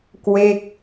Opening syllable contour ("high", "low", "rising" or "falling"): falling